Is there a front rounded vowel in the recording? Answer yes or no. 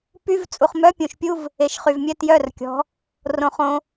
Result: yes